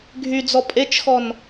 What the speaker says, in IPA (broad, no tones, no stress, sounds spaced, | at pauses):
ɡʱ y d͡z ɔ pʼ e t͡ʃ x ɔ n